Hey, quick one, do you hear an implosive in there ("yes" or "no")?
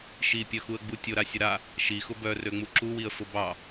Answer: no